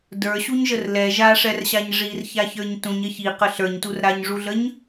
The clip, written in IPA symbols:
də˞ɕuɲʒər lɛ ʒaʂɛrɕaɲ ʐirçaçə˞ɲ tũɲ ɐçi qəɬə˞ɲtur ɾaɲʐuɮəɲ

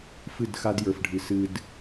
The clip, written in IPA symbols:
fɨ˦˨dxa˦djə˞˨fɖʱɨ˨ sɨ˨d

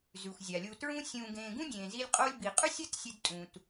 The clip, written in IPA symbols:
zʉ˩xʷ zʲa˩lʲu˨tɹũ˦ sʲũː˨ɡẽː˨ɡũ˥ dʲẽː˨zi˦lʲ qʼo˦lʲ bi˨qʼʉ˥sʲɐ˥t sʲɨ˦dtʼũ˨t

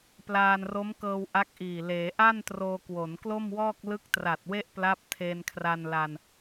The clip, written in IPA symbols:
plaː˧nro˦˥mkɤː˧w ʔa˦˥k̚ʔiː˨˩ leː˩˦ʔa˥˩n troː˧kwo˩˦nklo˥˩mwɔː˥˩k̚ lɯ˦˥k̚tra˨˩t̚we˥˩ʔpla˦˥p̚ tʰeː˧nkʰra˧nla˧n

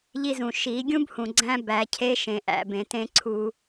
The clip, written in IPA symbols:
ʎi˧zũ˨ ʃi˨˦ ɡʲũ˦bhũ˨ ɡ͡ǀæ̃˦bæ˨˦cʰe˦ ʃẽ˨ʔæ̰˨ bẽ˨tẽ˧ ǀʰu˧

